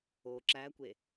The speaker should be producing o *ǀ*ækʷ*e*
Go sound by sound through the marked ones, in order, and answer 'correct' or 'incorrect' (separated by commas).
incorrect, correct